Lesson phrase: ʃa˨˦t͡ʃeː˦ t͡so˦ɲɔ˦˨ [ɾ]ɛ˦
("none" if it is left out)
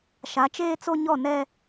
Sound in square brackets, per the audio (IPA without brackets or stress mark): n